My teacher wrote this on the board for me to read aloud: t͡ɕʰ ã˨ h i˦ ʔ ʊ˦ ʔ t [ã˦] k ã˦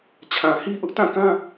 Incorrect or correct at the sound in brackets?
incorrect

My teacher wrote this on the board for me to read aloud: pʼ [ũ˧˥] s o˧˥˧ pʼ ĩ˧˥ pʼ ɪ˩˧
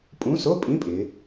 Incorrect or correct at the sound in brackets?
correct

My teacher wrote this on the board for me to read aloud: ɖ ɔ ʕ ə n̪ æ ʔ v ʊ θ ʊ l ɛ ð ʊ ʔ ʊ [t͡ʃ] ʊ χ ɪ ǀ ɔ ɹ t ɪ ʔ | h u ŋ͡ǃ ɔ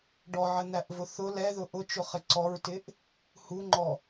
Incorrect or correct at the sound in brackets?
correct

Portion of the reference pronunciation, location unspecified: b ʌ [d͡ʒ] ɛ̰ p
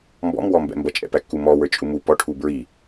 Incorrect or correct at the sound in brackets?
incorrect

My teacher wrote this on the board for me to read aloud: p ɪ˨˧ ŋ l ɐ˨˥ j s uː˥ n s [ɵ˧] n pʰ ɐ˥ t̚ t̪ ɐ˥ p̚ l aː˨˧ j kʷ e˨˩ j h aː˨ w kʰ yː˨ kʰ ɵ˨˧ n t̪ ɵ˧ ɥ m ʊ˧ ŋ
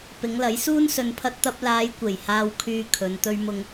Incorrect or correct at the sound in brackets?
correct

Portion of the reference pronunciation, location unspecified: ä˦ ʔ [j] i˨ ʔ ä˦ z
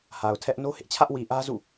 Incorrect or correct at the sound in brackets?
incorrect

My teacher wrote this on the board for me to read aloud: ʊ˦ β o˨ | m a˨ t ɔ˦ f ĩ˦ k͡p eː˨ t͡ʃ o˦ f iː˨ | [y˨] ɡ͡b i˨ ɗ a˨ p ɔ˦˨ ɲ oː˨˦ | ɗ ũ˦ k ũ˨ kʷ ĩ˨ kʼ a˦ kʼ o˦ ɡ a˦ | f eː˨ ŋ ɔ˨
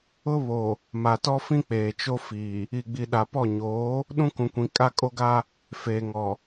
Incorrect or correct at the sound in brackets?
incorrect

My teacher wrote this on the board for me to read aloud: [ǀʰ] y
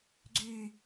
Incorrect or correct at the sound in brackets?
incorrect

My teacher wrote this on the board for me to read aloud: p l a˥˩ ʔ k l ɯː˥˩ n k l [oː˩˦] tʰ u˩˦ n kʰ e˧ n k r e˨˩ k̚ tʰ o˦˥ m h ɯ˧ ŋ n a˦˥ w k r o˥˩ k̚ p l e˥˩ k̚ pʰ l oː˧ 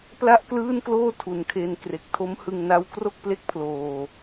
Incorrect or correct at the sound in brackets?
incorrect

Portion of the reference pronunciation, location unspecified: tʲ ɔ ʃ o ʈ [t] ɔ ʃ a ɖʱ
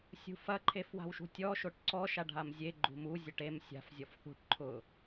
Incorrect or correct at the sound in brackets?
incorrect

